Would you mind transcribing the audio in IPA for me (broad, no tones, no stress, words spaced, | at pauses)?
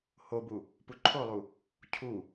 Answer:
hobu | puǃʰolˠu | cʰu